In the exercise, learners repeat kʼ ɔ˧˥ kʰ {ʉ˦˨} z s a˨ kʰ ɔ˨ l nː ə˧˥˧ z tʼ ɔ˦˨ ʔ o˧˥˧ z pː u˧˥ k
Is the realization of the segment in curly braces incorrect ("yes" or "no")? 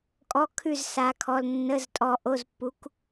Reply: no